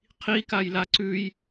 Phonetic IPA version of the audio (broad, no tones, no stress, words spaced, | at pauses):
qʰikajla ǀʉj